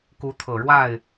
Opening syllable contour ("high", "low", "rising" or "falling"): rising